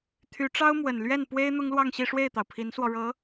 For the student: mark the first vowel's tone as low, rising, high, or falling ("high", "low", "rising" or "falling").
rising